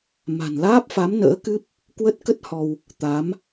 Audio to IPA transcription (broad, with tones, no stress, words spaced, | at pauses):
ma̤˨˩nlaː˦˥p̚fa˨˦m nə̰ː˧˥kɨ˦˥p̚ | kwə˦˥t̚kə˦˥t̚ hɔ˧w | t̪a˨˦m